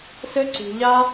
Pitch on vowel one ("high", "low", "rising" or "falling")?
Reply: high